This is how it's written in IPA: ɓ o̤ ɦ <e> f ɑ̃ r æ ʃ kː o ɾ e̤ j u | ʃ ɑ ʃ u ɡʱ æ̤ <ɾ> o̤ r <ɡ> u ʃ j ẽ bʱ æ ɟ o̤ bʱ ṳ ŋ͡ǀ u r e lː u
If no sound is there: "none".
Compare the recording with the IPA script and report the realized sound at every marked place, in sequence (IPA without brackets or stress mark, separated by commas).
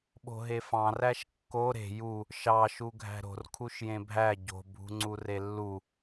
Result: e, ɾ, kʰ